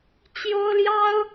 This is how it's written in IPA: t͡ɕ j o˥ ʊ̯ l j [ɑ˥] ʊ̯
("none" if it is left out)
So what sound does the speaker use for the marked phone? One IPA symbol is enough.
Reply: ɑ˥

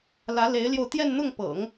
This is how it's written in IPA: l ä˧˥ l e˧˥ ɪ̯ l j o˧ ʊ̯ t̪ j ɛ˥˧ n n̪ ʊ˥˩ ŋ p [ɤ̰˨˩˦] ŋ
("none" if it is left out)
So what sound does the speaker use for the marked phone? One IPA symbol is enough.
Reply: ɤ̰˨˩˦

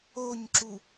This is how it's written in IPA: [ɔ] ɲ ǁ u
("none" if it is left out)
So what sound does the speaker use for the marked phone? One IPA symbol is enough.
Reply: o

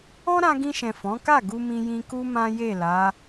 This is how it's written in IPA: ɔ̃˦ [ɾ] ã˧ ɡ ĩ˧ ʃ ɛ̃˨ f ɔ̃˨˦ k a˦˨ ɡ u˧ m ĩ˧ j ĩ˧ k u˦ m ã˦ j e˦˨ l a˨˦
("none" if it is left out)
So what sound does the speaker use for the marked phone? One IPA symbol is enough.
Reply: ɾ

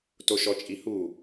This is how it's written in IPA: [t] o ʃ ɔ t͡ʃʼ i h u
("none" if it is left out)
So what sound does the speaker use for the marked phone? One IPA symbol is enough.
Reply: t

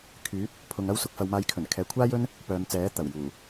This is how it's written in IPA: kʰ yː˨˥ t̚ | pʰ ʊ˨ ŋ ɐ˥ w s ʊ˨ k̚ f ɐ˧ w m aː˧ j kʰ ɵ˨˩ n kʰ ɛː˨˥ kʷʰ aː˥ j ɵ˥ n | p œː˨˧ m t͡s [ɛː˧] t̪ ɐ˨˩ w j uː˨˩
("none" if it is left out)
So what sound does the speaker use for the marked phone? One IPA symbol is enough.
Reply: ɛː˨˥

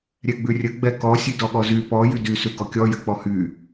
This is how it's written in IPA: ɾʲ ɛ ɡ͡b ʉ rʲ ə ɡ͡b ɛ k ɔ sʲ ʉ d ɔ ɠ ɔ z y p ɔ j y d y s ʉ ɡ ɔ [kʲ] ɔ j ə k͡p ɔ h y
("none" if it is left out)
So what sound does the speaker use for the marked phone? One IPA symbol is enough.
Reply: kʲ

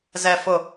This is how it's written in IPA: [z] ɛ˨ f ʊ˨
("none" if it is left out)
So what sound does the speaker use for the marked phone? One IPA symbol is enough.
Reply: z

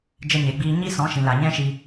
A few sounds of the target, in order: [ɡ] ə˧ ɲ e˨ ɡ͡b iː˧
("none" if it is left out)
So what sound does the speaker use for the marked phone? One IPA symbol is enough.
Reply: d͡ʒ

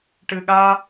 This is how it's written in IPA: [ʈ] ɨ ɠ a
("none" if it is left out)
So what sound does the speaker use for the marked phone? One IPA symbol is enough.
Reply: ʈ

